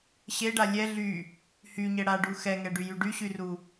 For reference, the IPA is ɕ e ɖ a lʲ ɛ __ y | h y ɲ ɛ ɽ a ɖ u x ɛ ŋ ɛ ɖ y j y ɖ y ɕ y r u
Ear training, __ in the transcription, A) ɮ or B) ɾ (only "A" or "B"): A